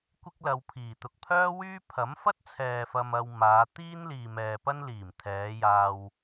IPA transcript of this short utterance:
kʷ ɪ˥ k̚ l ɐ˨˧ w pʰ iː˨˩ t̪ ʊ˨ k̚ pʰ œː˥ w yː˥ pʰ ɐ˨˥ m f ɐ˥ t̚ t͡sʰ ɛː˨ f ɐ˧ m ɐ˧ w m aː˨˧ t̪ iː˥ n l iː˨ m ɛː˨ p ɐ˥ n l iː˨˩ m t̪ʰ ɛː˨˧ j aː˧ w

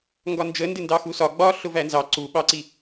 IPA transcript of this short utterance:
ŋ ɡ ɒ n d͡ʒ ə n d ɪ n d ɑ x u s ɒ ɡ͡b ɒ ɬ ʊ v æ n z ɑ ǀ u ɓ ɑ ǀ i

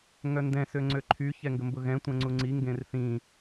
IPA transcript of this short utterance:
ŋ œ n d ɛ̃ s ø ŋ͡ǀ ø ǃʰ y ç ɛ ŋ ɡ ə m b ʊ ɣ ɛ̃ tʷ ɛ̃ ŋ͡ǀ u ŋ͡ǀ i ŋ ɡ ẽ r θ ĩ

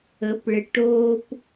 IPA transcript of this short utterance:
ə˨˦ p ɭ ɪ˨ ʈ oː˦ p

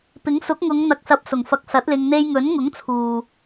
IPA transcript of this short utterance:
p ɪ˨˥ ŋ s ʊ˨˥ k̚ ŋ ʊ˨˧ ŋ n̪ ɐ˨ k̚ s ɐ˨˥ p̚ s ʊ˨˩ ŋ f ɐ˨˥ k̚ s ɐ˨˥ t̚ l ɪ˧ ŋ n̪ e˧ j ŋ ɵ˨˥ n ŋ ʊ˨˥ ŋ t͡sʰ uː˨

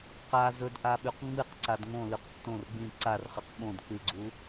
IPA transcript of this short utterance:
q a z ɵ d ʔ a ɓ ʉ q ŋ͡m ɨ q ǀ a d ŋ õ l ʉ q tː õ r ɡ͡b ĩ ǀ a r χ ɨ q ɓ õ d k͡p ɨ ɡ͡ǀ u

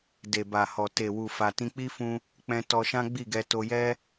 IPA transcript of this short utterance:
d e˨ b a˨ h ɔ˨ t e˨ w u˨ f a˨ t ĩ˧ k͡p i˦ f ũ˧ | k͡p ɛ̃˧ t ɔ˧ ʃ ã˦ ɡ͡b i˦˨ ɡ ɛ˧ t o˧ j ɛ˦

